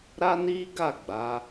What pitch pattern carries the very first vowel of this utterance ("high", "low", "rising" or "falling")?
high